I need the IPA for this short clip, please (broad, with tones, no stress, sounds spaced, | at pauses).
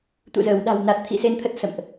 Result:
t̪ ṵ˧˨ z əː˧˩ w ɗ a̤˨˩ w n a˨˩ t̚ t̪ʰ ḭ˧˨ s e˧ n t̪ʰ ə˦˥ t̚ s ə̰˧˨ m ʔ